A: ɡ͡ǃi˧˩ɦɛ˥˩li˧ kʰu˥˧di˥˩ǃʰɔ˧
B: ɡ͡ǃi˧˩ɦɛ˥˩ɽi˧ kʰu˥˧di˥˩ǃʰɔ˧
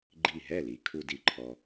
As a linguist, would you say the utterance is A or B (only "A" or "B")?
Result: A